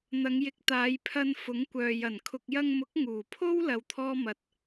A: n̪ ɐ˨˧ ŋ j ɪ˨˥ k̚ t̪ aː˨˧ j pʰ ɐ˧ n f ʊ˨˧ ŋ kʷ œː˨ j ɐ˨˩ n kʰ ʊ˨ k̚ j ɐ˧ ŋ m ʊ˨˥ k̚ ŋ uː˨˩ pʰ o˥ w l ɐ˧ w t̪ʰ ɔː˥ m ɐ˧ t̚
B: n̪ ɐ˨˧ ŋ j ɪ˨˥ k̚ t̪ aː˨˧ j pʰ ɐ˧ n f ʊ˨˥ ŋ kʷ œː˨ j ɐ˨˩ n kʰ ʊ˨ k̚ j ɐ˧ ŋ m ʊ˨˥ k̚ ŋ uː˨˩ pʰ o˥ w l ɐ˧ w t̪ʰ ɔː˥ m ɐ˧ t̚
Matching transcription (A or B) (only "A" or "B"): B